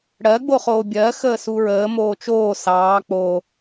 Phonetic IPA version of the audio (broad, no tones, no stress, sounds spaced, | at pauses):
ɽ ɜ ɡ͡b o χ oː bʲ ɜ x əː s u ɹ əː m oː t͡ʃ oː s ɑː k͡p o